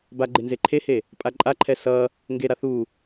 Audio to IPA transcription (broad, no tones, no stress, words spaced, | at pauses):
baɡ͡ǃe nzeǃʰehe | pʼaǃʼaǃʰɛ sʌ | ŋɡeɾa θu